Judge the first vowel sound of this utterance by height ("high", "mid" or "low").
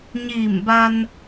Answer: high